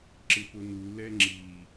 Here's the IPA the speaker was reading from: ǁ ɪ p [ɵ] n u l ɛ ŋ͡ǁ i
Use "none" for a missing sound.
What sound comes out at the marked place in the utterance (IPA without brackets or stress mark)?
ʊ